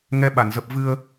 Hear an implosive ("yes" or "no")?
yes